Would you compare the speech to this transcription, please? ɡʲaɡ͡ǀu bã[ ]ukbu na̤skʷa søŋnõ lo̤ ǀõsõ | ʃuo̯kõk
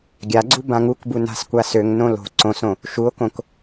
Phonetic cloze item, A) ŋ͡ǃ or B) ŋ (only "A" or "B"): B